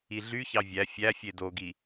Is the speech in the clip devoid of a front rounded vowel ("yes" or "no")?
no